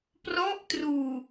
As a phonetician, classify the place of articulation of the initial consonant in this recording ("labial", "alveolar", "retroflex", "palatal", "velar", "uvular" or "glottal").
labial